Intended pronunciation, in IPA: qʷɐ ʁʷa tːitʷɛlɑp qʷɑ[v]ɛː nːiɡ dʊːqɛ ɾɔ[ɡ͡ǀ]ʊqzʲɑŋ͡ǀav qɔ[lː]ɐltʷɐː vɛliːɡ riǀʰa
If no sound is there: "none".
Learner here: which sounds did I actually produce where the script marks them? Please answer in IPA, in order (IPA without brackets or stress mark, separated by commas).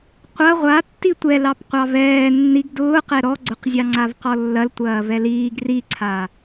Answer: v, ɡ͡ǀ, lː